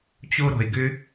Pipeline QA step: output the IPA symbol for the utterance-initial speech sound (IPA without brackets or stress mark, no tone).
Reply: t͡ɕ